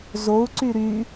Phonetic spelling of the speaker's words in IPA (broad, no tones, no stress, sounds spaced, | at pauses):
z o u̯ ǀ y ɾ y